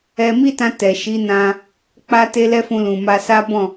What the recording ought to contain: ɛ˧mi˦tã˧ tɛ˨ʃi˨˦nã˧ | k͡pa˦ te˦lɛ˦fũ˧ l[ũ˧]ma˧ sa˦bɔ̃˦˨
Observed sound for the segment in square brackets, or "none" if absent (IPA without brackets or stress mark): ũ˨